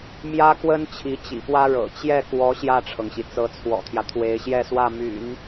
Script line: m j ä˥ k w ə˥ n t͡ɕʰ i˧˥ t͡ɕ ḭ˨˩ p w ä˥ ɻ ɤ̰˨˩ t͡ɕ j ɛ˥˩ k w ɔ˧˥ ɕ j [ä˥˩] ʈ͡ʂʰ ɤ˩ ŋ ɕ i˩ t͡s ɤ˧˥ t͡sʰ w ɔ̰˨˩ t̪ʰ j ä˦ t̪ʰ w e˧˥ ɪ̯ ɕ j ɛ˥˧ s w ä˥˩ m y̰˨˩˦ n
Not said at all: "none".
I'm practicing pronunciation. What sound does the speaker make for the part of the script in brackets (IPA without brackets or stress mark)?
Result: ä˥˩